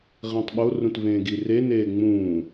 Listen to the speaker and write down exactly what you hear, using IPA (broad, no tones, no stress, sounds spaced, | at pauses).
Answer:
ʁ ĩ tˤ ɓ o r ũ t v ẽː ɡ i r e n eː ŋ͡m ũː